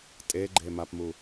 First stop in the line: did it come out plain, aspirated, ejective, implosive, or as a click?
ejective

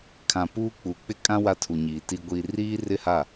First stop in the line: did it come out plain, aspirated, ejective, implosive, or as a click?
aspirated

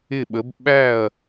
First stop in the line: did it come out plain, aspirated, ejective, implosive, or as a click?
implosive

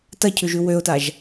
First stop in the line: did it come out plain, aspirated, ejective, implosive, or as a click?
plain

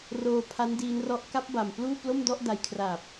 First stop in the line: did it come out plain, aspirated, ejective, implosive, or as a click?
aspirated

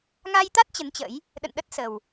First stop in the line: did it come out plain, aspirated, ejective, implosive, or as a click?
plain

